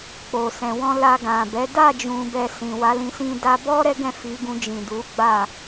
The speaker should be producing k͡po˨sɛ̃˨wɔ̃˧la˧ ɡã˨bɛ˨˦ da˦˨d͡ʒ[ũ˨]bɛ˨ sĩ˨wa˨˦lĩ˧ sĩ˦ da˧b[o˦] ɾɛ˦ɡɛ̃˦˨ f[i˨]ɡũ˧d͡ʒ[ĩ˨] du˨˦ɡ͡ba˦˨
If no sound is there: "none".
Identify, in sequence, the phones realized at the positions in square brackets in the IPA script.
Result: ũ˨, ɔ˦, i˨˦, ĩ˨

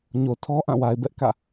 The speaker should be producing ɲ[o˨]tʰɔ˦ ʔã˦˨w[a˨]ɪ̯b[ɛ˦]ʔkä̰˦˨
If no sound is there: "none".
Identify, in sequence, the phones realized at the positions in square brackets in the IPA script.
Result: o˨, a˨, ɛ˦

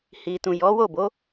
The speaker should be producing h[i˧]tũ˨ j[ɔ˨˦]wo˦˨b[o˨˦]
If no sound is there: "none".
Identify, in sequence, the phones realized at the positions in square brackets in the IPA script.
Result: i˨, ɔ˨˦, o˨˦

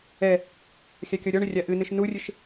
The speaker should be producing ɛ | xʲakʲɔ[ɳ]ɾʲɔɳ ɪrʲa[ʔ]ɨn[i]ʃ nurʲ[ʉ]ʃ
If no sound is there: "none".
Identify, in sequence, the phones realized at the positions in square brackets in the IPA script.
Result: none, ʔ, ɨ, ɨ

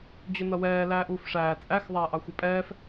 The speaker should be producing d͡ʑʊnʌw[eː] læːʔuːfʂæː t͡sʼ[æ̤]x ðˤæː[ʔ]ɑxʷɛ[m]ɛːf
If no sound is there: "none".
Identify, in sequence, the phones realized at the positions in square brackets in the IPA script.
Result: ɛː, æ, ʔ, pʼ

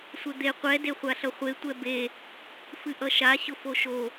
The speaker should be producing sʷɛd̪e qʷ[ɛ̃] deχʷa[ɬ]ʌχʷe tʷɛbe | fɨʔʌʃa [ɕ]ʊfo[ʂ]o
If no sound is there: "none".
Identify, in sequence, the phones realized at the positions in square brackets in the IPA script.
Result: ɛ, ɬ, ɕ, ʃ

